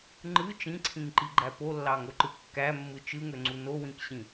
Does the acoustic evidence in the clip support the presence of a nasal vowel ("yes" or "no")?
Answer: yes